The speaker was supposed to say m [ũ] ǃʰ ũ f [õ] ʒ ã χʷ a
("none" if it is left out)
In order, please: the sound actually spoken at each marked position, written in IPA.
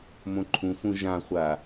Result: õ, ũ

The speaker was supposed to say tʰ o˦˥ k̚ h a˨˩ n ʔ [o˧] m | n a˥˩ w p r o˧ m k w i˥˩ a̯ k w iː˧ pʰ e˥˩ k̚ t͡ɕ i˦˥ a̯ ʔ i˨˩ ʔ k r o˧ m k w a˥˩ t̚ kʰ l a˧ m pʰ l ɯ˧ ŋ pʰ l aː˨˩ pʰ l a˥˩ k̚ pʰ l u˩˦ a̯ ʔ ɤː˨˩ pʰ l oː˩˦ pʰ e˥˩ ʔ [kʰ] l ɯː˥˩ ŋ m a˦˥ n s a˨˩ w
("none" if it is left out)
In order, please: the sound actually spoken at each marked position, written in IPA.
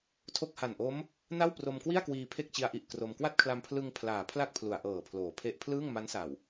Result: o˦˥, pʰ

